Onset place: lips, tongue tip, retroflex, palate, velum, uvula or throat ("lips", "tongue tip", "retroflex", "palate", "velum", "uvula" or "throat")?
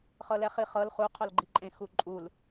uvula